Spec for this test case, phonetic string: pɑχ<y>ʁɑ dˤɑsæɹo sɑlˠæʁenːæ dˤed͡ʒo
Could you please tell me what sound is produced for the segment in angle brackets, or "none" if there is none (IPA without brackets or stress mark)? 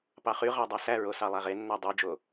y